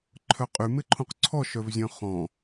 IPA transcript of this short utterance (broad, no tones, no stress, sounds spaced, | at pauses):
ǃʰ œ qʼ y m ɪ ǃʰ ũ q ǀʰ ɔ ʃ œ v zʲ œ̃ χ ɔ̃